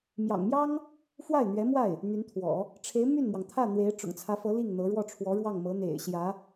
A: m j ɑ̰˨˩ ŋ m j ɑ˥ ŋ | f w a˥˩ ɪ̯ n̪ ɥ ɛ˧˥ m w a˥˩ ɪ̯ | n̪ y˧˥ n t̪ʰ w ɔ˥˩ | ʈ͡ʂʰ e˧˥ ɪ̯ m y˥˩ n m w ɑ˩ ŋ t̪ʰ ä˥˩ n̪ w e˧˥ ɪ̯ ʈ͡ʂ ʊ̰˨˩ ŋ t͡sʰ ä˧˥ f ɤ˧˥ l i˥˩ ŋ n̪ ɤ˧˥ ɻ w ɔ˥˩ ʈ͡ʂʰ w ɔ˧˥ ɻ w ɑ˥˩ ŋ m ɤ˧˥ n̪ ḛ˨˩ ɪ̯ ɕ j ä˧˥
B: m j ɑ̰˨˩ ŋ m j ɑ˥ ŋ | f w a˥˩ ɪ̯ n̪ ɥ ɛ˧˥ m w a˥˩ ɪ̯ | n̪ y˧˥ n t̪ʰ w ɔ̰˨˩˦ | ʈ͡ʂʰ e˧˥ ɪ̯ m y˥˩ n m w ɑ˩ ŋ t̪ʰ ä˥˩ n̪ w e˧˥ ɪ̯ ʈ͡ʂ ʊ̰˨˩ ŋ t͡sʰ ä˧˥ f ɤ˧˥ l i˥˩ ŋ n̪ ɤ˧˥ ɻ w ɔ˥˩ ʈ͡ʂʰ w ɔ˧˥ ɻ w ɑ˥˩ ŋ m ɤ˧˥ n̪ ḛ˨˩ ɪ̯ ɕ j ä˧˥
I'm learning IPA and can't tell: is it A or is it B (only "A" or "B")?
B